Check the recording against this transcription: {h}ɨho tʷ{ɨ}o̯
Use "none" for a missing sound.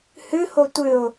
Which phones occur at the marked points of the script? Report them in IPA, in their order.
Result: h, ɨ

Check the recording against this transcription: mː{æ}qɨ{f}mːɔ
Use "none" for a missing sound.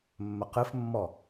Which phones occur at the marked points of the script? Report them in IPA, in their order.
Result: ə, f

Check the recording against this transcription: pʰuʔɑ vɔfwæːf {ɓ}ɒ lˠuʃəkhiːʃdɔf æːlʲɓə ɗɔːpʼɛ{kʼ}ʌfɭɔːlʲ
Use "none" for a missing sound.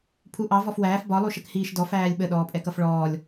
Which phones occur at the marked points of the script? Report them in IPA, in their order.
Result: b, k

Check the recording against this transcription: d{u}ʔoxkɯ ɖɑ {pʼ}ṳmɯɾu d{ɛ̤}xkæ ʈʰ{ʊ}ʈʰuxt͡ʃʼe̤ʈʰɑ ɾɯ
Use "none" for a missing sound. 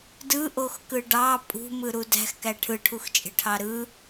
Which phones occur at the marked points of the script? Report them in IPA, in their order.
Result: ɯ, pʼ, æ̤, ɯ

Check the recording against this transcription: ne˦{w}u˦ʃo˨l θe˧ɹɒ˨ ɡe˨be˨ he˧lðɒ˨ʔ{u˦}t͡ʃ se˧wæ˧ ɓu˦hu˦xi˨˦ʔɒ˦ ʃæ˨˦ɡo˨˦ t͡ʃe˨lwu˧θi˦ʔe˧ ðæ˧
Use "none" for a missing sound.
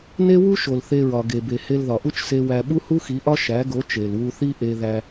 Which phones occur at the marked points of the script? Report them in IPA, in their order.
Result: w, u˦

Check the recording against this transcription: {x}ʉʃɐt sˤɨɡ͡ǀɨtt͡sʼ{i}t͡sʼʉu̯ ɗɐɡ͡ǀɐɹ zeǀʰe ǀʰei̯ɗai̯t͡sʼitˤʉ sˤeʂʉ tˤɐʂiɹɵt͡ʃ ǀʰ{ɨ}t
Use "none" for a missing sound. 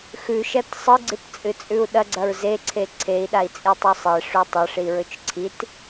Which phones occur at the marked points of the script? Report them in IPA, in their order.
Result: x, ɨ, i

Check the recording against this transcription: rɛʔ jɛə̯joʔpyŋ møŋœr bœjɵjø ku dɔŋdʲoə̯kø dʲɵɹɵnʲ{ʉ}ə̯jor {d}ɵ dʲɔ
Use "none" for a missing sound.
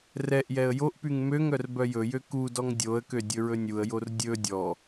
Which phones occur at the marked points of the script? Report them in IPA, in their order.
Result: u, dʲ

